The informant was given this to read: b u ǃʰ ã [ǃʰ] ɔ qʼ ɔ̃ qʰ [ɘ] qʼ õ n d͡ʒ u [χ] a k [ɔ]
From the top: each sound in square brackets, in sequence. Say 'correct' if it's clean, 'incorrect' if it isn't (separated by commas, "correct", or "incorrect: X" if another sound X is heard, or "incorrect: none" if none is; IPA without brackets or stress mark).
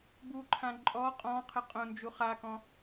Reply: incorrect: ǃʼ, correct, correct, incorrect: ɔ̃